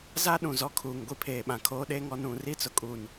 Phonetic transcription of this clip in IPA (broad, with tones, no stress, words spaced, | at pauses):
za˦ ɗũ˨zɔ˦kʰuː˨ŋ ɡʷi˦pʰeː˨ɓã˨ kʰoː˦ɗeː˦ŋɔ˦ nũ˨ ri˦˨t͡sʊ˨kʼu˨n